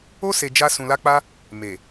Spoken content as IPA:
o˦ s e˧ d͡ʒ a˦ s ũ˧ l a˦ k͡p a˦ | m e˨

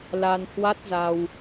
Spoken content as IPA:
l a˧ n h w a˦˥ t̚ z a˧ w

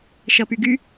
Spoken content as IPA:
ʃ ʌ p y ɡ y

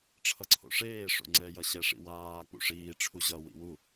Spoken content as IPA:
ʈ͡ʂʰ ʌ ǀʰ o̰ ʂ eː ʂ o̰ ŋ͡ǀ ɛ j ʌ ɕ ɛ ʂ ḭ w aː k͡p ṵ ʂ iː ʈ͡ʂʰ u ʑ ʌ w ḭ w u

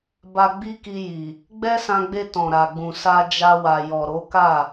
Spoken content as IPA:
b a˧ ɡ͡b i˦ k i˧ j i˨ | ɡ͡b ɛ˦ s ã˧ ɡ͡b e˧ t ɔ̃˨ ɾ a˨ ɡ͡b ũ˨ s a˧ d͡ʒ a˧ w a˨ j ɔ˨ ɾ o˨˦ k a˦˨

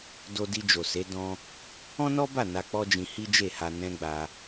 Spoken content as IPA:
d o˧ d i˧ d͡ʒ o˨ s e˨˦ d ɔ̃˧ | ɔ̃˦ n ɔ˦ b a˦˨ n a˧ k͡p ɔ˦ d͡ʒ ĩ˧ h i˦ d͡ʒ e˦˨ h a˧ n ɛ̃˦ ɡ͡b a˧

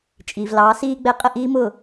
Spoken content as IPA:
t͡ʃʼ iː˨ v l ɑː˨˦ s iː˧ ɡ͡b ɛ˨˦ qʼ ə˦˨ ʔ iː˦ m ʊ˦˨

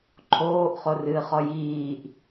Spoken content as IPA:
ǃʰ oː ʔ χ o r ɨː χ ɔ j iː ʔ

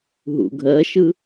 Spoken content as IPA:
ɦ ṵ ɡʱ ɜ ʃ ɯ

